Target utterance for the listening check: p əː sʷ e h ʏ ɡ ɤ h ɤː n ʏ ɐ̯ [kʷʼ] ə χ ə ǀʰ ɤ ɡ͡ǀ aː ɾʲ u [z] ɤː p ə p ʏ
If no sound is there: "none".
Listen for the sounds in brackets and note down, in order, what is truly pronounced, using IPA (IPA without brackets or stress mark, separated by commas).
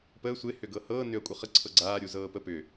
kʷʼ, z